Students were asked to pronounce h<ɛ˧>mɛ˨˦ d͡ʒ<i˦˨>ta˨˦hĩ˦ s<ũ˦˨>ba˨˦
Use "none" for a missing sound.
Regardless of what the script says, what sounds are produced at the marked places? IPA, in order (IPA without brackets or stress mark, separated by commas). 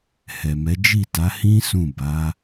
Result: ɛ˨, i˦˨, ũ˦˨